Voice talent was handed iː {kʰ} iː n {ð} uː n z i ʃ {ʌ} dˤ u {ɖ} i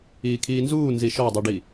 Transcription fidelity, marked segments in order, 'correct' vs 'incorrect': correct, incorrect: z, incorrect: ɔ, correct

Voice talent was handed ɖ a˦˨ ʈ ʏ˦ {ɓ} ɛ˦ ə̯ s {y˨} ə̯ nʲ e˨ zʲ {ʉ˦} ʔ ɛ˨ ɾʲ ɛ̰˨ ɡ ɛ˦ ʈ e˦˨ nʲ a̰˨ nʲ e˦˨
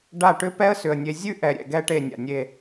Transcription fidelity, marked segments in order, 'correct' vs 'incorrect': incorrect: p, incorrect: ʏ˨, correct

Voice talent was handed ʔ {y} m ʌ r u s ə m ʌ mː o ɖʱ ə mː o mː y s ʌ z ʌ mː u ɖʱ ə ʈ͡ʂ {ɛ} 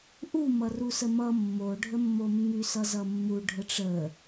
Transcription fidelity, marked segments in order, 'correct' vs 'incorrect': incorrect: u, incorrect: ə

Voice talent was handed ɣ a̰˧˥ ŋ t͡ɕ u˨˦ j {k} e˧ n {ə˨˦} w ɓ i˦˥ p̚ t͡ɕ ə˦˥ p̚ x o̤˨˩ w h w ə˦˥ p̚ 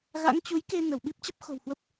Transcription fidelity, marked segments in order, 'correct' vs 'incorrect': correct, incorrect: ə˧˩

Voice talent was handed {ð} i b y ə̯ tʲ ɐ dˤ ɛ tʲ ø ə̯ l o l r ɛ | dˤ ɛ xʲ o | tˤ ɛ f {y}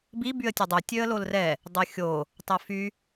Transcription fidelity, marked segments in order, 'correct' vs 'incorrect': incorrect: b, correct

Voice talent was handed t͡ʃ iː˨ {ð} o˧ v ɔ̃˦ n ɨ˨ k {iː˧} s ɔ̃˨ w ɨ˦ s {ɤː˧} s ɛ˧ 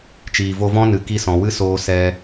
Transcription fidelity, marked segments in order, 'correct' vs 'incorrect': incorrect: v, incorrect: i˧, incorrect: oː˧

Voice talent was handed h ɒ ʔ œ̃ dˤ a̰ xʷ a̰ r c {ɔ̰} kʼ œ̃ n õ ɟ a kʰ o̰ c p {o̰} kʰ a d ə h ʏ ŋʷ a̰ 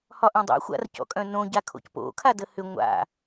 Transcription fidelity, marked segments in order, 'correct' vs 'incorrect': correct, correct

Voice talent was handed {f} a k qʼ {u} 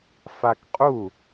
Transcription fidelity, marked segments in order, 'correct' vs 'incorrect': correct, correct

